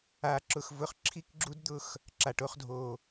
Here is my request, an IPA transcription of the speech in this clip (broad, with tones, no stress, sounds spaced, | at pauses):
a˧ ǁ ʊ˧ x v ʊ˧ χ ǁʰ i˦ k ɡ͡ǁ u˦ d d̪ ʊ˦˨ x | ǁ a˨ ʈ o˧ χ dʱ o˨